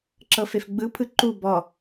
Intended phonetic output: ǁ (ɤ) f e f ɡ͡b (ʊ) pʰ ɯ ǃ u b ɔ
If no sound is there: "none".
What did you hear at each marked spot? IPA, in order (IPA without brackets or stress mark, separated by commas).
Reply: ɤ, ɯ